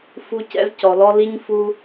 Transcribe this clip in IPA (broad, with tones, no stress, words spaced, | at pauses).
fu˦cɛ̰˦zcɔ˨lɔ˦ li˦ɲfu˦